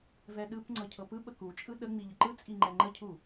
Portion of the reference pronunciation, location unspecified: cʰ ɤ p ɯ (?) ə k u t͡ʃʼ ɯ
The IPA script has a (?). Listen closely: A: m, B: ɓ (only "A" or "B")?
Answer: B